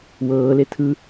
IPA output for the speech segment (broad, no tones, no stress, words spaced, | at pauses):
wɤːle tʰɯ